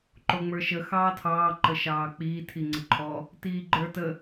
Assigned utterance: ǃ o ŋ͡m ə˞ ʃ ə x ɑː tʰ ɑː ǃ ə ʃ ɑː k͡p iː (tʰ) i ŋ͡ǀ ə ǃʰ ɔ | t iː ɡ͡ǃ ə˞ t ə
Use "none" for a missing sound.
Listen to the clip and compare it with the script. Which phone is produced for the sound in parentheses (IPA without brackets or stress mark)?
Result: tʰ